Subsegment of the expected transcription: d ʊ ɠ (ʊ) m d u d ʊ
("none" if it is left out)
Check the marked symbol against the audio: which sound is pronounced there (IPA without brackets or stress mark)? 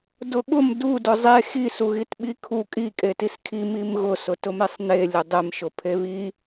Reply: ʊ